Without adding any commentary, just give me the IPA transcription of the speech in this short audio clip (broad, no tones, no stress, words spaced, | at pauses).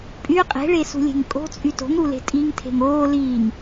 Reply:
pʼy qʼe̤ɭesṳlʲe̤ŋ kʼo̤t͡sʼy to̤ŋɾule̤ tʼiŋ tʰe̤ŋoː liːŋ